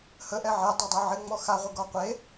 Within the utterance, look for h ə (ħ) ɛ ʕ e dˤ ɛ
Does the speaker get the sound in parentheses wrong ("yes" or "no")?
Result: yes